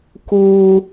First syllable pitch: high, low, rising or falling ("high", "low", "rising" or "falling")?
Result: low